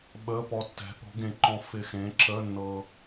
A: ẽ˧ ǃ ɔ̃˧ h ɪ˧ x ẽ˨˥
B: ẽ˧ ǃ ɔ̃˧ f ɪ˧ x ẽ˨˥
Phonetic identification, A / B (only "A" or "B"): B